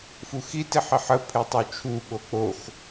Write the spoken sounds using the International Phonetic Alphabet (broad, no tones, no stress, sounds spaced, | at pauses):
f u x i t i ħ i ħ ə pʰ e tˤ o t͡ʃʰ u ɓ o k͡p o x